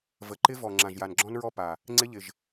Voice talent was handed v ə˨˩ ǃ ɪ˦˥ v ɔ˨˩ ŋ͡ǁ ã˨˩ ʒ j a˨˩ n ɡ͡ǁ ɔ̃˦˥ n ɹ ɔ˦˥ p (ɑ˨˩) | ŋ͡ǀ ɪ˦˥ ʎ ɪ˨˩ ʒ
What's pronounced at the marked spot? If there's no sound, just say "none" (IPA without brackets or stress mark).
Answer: a˨˩